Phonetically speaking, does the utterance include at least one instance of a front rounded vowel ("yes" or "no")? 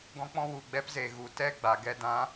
no